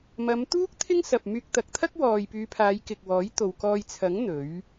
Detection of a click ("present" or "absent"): absent